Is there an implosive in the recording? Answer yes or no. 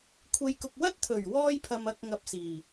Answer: no